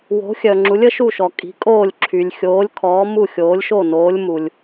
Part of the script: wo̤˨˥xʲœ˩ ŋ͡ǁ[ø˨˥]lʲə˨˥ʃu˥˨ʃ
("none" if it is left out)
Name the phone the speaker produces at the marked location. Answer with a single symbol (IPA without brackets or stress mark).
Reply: u˨˥